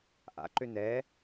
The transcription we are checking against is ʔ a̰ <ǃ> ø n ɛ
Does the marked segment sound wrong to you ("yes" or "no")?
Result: no